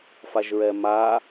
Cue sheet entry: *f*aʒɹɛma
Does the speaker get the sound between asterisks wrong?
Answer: no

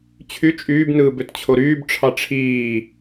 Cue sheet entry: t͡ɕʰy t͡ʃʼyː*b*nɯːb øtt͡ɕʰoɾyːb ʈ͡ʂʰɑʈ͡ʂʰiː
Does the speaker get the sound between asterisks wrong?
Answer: no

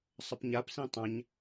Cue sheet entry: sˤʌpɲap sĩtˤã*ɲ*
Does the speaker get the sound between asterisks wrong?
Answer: no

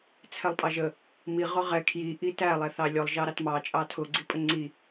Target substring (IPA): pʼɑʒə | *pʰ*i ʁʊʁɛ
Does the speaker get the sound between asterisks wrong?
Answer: yes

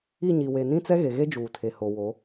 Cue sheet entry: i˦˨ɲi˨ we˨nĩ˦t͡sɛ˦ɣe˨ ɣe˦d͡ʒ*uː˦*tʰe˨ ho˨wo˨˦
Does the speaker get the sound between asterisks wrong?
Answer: yes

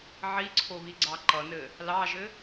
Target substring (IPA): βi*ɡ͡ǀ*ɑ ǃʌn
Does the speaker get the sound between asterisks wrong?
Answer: no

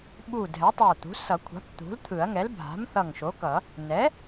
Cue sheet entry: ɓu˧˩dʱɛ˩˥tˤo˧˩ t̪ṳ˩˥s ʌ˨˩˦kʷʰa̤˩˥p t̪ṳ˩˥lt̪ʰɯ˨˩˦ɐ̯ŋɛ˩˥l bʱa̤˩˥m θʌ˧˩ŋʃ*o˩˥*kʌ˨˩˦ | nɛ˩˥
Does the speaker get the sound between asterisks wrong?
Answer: no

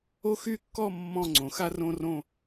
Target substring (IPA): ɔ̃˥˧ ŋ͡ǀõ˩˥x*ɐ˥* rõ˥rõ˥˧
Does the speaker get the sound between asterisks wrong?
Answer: yes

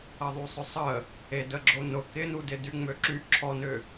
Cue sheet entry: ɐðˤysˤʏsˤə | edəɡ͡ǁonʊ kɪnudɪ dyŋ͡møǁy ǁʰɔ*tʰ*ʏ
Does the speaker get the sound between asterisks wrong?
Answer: yes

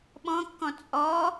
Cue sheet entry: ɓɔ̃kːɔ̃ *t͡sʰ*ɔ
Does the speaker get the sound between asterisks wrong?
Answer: yes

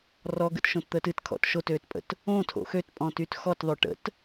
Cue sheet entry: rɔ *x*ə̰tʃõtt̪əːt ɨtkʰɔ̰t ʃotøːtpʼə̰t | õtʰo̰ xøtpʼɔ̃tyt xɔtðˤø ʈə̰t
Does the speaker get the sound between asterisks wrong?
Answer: yes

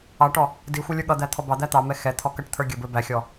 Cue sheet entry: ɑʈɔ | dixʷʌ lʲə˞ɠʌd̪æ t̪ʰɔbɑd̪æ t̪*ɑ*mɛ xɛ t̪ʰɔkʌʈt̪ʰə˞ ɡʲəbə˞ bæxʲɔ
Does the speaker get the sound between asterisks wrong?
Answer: no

